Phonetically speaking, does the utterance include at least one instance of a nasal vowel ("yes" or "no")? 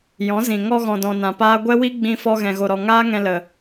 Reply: yes